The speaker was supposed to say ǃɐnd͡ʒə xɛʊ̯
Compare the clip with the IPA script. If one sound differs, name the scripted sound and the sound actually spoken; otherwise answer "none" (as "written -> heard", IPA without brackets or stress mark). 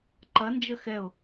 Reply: none